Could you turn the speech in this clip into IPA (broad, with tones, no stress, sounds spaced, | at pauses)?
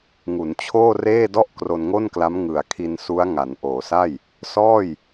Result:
ŋ u˩˦ n t͡ɕʰ oː˥˩ r eː˥˩ d ɔ˥˩ ʔ k r o˧ n ŋ o˥˩ n k l a˦˥ m ŋ ɯ˨˩ a̯ kʰ i˧ n s u˦˥ a̯ ŋ a˩˦ n ʔ oː˩˦ s a˥˩ j | s ɔː˥˩ j